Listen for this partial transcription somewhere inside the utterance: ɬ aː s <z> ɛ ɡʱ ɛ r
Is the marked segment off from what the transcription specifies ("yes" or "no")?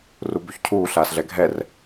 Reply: yes